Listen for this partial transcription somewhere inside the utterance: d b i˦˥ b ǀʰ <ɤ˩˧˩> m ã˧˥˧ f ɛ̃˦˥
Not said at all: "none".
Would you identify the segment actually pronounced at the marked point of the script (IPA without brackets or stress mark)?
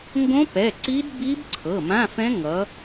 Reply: ɤ˩˧˩